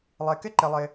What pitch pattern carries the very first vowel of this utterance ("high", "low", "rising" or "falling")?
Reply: low